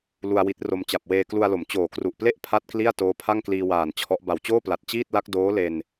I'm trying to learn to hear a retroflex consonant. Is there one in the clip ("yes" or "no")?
no